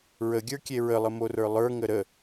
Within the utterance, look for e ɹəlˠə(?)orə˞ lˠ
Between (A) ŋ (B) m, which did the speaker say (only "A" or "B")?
B